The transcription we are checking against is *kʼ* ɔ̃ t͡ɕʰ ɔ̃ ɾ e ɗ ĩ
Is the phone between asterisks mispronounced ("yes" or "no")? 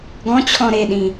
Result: yes